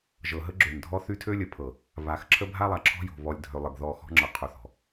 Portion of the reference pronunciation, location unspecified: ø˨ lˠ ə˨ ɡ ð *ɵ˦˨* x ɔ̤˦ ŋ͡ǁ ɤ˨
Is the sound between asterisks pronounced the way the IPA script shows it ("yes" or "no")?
no